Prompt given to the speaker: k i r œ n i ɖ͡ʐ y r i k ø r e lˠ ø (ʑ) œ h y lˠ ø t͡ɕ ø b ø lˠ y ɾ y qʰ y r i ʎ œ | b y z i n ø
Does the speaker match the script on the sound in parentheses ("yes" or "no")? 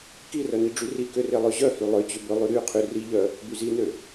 yes